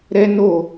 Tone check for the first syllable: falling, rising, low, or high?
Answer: high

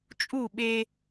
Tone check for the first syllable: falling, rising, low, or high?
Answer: falling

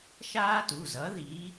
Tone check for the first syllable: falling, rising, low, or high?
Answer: high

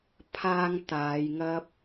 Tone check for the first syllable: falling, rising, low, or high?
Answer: high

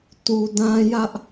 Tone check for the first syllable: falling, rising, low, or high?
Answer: low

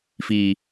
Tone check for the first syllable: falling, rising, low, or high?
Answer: low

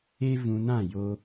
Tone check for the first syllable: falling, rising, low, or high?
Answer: high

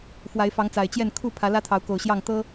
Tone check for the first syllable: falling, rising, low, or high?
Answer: rising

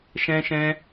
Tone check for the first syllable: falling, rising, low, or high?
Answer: high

